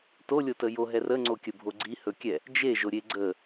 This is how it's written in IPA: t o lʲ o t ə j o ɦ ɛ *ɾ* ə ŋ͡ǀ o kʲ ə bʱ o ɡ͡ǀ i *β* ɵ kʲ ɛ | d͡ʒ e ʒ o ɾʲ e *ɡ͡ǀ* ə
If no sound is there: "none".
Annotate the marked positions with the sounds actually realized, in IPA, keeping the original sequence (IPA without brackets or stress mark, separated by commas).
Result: r, h, ɡ͡ǀ